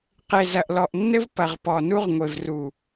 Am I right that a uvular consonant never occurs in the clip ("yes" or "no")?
no